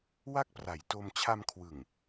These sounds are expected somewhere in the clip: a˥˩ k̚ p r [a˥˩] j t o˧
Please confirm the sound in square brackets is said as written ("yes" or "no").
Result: no